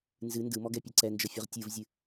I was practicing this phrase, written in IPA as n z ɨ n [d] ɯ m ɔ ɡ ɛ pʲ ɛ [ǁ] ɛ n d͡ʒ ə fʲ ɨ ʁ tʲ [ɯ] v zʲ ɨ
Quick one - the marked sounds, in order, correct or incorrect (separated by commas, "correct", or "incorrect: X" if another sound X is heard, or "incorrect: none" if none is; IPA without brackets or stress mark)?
correct, incorrect: ǀ, correct